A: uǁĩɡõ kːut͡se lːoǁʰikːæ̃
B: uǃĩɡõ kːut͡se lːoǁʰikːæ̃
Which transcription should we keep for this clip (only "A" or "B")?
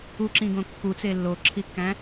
A